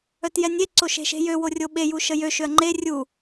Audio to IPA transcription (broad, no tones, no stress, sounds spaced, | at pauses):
œ t j ɛ nʲ e ǀ o ʃ e̤ ʃ e̤ j ø w o rʲ o ɓ e j u ʃ ə j ø ʃ ø ɐ̯ ŋ͡ǃ e rʲ u